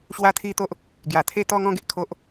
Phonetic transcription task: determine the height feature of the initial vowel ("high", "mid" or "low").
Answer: low